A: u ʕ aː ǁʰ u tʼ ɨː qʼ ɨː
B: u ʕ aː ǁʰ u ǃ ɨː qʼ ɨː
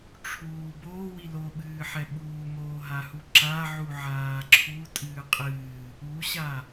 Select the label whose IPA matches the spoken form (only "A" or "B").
A